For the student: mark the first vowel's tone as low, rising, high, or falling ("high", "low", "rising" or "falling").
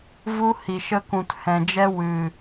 high